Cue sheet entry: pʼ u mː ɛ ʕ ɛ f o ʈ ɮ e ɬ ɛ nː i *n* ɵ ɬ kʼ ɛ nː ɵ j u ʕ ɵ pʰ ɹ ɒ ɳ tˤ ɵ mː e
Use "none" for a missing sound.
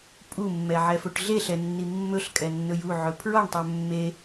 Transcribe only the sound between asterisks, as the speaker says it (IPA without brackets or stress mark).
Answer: mː